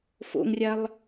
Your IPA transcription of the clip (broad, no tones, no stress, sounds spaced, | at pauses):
f o̰ ŋ rʲ a lˠ